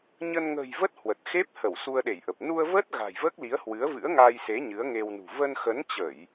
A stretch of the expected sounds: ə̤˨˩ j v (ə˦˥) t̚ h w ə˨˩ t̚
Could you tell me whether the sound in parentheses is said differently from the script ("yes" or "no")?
no